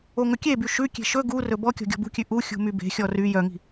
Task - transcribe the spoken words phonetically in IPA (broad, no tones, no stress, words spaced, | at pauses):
oŋɵkʲeby ʃʉkʲe̤ ʃɵ ɡurɵ bɔ kʲɔ̤ɡʲɔ̤bṳkʲʉ ʔu xʲṳmybe̤xʲɔ ry jœŋi̤